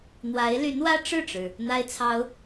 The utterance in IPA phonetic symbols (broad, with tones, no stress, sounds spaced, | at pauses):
n̪ w a˧˥ ɪ̯ l y˧˥ n w ä˥ ʈ͡ʂ ɻ̩˥˩ ʈ͡ʂ ɻ̩˩ | n̪ a˥ ɪ̯ t͡sʰ ɑ˥ ʊ̯